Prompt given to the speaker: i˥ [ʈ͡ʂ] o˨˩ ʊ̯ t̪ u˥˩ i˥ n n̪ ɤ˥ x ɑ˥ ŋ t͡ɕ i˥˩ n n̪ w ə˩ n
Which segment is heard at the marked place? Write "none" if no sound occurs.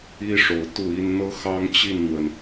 ʂ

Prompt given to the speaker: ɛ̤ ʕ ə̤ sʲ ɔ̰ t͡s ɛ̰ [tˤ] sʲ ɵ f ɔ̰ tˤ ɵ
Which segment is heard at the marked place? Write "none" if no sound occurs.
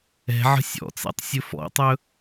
tˤ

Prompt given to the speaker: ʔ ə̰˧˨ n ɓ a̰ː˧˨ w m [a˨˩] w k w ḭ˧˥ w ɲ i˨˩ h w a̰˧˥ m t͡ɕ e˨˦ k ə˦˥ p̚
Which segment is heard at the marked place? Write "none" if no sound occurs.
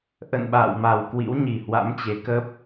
a˨˩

